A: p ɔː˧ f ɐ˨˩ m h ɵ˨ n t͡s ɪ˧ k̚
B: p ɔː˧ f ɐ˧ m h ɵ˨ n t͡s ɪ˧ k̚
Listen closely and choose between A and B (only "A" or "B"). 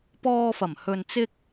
A